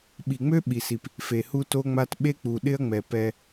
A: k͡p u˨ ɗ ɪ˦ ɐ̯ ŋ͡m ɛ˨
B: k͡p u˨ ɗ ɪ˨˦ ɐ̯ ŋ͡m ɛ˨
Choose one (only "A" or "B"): A